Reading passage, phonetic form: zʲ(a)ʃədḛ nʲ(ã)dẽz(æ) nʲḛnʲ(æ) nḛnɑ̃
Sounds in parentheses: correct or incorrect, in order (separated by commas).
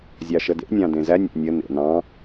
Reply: incorrect, incorrect, correct, incorrect